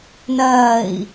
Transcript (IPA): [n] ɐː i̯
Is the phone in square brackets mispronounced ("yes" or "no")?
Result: no